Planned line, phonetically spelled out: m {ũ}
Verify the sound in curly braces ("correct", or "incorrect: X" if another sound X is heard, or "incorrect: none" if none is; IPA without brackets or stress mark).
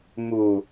incorrect: u